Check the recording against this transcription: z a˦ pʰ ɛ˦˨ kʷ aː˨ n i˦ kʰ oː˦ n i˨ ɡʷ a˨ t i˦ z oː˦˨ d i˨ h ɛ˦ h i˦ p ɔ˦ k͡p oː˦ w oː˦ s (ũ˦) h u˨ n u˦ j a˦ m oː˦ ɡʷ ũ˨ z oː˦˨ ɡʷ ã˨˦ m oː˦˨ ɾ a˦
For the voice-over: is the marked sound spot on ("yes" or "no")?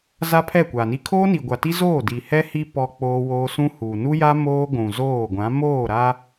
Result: yes